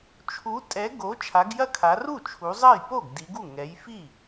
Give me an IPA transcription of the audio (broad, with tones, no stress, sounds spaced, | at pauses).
t͡ʃʰ u˨˦ tʼ ɛ˨˦ ɡ o˨˦ t͡ʃʰ a˨˦ ɡ j ɐ˥˩ kʰ a˨˦ r u˥˩ t͡ʃʰ u˨˦ zˤ ɐ˥˩ j p o˥˩ ɡ d i˨˦ ɡ u˥˩ ŋ ɛ˨˦ j f i˥˩